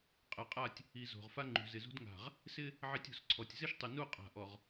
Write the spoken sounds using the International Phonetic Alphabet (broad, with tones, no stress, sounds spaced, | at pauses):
qʼ ɛ˨ qʼ a˦˨ tʲ | i˨ z o̤˨ ʁ f a˦ ŋ͡ǃ ṳ˨ z ɪ˨ z ṳ˦ d ŋ a̤˨ ʁ | s ɪ˦ | ʕ e˦ tʲ o̤˨ s ǀʰ ɔ˨ tʲ z ɪ˦ ʃ tˤ ɪ˨ n u˦˨ qʼ a̤˨ ʔ ɔ˨ ʁ